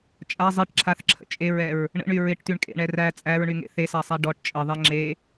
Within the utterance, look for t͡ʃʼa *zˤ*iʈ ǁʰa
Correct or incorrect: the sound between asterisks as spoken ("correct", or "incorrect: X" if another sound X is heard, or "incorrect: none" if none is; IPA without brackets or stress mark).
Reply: correct